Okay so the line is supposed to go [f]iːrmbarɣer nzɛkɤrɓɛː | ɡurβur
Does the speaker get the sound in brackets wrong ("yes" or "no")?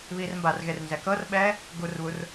yes